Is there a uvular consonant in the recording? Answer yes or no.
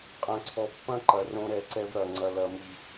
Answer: yes